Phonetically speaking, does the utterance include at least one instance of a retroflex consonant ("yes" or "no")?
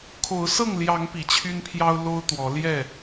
no